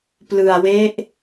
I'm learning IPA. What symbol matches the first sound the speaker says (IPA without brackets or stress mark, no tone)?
p